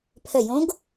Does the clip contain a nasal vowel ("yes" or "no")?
yes